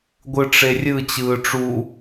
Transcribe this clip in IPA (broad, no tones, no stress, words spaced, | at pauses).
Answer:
ɡʷɯʈ͡ʂerʲɯ t͡ɕɯːʈ͡ʂu